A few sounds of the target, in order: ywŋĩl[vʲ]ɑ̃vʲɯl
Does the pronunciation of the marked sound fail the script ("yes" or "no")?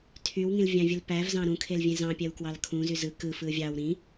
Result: no